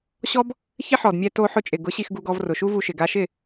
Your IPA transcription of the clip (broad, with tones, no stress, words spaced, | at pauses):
ɕɔ˦b | çɪ˦ħɔ˨dmʲɛ˧to˧ ħʊ˧t͡ʃʼɪ˨ɡʊ˨˦ ɕi˧xɡu˧ɡɔ˧v rʊ˨ʃu˦vu˧ʃɪ˨ ɡa˧ʃɪ˦˨